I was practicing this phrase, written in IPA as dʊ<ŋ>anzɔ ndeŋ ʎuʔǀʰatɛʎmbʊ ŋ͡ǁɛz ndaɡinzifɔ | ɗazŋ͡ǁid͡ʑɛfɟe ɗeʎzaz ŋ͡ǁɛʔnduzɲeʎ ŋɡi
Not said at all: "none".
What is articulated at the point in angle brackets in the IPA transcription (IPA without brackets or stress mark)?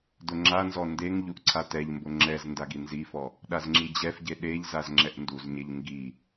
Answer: ŋ͡ǁ